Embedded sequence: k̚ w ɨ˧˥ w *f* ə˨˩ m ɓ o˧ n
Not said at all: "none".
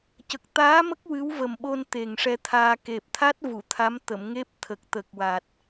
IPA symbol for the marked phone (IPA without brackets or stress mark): v